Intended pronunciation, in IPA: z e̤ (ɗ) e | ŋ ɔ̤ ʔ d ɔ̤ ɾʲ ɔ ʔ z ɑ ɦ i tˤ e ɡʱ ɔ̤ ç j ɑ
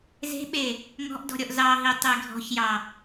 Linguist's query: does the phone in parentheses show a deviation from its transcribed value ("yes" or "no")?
yes